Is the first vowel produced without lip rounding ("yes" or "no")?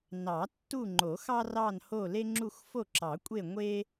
yes